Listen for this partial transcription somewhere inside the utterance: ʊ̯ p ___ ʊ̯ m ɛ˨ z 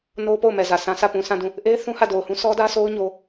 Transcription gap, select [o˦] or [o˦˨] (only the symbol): o˦˨